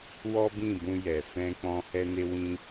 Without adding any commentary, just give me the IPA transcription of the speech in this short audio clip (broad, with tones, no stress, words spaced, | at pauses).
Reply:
wɔ˦bĩ˦˨bũ˧jɛ˨ fɛ̃˧k͡pɔ̃˧ hɛ˧ne˧ wĩ˦